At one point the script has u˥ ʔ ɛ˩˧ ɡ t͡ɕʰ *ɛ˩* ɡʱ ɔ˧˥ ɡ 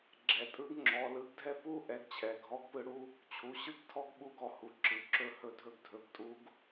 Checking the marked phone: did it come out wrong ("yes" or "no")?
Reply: no